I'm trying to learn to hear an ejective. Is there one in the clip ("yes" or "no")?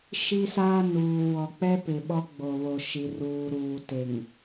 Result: no